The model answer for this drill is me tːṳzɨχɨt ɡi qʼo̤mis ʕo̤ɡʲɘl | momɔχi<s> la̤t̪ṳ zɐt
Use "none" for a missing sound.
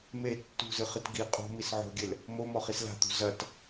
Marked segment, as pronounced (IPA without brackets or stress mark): s